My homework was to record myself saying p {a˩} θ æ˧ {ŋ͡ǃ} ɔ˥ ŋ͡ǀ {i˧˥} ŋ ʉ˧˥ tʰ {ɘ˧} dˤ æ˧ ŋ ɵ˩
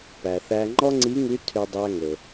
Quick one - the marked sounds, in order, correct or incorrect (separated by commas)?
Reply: incorrect, correct, correct, incorrect